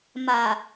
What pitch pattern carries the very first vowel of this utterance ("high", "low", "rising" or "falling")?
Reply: low